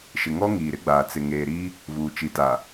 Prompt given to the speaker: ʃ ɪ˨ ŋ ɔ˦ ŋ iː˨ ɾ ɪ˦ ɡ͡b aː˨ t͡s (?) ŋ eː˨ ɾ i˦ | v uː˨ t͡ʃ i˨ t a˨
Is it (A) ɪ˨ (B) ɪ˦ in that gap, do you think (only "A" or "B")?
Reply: A